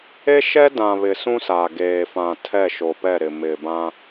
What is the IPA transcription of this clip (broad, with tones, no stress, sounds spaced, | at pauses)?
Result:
e˦ ʃ ɛ˦ d ã˨ β ɪ˨ s ũ˦ s aː˨ ɡ eː˨ f ã˨ tʰ ɛ˦˨ ʃ o˨ p ɛ˦˨ ɾ ɪ˨ m ɪ˨ b ã˦